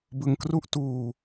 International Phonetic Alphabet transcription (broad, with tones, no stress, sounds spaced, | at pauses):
b ɯ˧ ŋ k r u˥˩ ʔ t uː˧